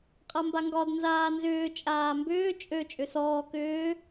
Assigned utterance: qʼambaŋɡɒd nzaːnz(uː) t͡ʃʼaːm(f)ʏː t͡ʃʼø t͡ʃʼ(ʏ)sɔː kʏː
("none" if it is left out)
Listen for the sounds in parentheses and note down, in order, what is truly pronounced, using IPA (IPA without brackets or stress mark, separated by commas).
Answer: ʏː, b, ʏ